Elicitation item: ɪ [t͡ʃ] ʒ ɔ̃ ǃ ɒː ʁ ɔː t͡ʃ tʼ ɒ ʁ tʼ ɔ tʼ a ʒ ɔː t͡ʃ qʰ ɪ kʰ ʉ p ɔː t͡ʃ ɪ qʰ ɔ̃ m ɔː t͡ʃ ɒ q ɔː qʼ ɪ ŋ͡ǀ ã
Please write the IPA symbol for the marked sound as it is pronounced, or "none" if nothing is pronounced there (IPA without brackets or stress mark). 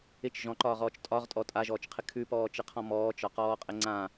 t͡ʃ